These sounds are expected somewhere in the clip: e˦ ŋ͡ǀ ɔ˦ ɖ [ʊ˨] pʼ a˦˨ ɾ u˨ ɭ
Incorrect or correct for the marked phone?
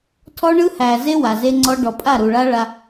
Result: incorrect: ɔ˨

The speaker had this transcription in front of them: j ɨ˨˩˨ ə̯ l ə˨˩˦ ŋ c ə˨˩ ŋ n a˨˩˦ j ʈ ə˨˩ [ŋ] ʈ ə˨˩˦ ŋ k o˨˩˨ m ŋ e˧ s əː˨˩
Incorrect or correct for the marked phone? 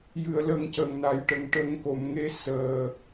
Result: correct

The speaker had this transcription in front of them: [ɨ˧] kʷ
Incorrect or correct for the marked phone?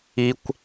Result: incorrect: i˧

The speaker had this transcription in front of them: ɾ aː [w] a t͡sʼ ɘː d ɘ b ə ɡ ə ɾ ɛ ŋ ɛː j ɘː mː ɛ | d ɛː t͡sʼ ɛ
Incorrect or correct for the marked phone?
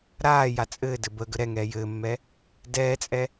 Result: incorrect: j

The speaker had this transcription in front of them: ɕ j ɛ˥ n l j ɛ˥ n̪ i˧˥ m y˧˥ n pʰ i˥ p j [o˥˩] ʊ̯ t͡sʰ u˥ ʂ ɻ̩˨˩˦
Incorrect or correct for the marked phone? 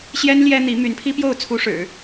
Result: correct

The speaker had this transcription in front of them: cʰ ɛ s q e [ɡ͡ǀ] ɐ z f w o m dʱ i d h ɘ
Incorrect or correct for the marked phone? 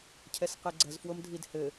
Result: correct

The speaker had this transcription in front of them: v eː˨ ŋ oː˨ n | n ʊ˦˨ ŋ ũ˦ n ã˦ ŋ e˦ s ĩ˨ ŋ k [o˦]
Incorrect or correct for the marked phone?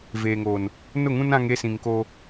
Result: correct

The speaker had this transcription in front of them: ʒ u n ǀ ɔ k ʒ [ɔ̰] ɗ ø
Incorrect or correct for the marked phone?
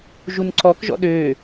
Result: correct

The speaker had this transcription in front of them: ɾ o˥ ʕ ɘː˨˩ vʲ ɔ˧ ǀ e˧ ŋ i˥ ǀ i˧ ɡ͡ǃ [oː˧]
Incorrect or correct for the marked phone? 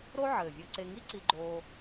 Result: correct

